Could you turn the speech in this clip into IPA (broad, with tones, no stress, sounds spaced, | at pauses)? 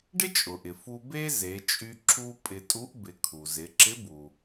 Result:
ɖ ɪ˥ t͡ʃʼ ʊ˩ ʔ ɪ˩ f u˧ b e˥ z e˩˧ t͡ʃʼ y˧ ǁ u˧ pʼ ɪ˧ tʼ u˧˥ ʔ b ɪ˩˧ kʰ u˩ z ɪ˩˧ ǁ ɪ˧˥ b u˩